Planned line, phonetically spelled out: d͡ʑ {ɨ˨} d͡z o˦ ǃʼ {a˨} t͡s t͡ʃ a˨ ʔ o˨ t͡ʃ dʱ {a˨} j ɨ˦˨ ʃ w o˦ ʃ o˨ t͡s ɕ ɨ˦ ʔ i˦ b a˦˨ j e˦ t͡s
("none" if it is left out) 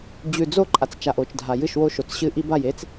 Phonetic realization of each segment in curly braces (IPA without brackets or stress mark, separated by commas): ʉ˨, a˨, a˨